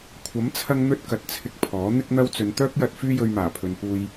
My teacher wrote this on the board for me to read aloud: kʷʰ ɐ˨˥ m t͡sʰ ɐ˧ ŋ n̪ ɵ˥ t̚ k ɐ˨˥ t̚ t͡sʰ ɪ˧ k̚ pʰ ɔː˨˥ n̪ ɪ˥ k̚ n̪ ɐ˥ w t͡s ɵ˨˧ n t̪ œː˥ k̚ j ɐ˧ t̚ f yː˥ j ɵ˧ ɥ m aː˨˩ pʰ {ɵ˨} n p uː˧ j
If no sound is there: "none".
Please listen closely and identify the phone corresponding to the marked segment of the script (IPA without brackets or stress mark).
ɵ˨